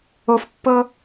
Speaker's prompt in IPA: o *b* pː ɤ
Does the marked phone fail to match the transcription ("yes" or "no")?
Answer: yes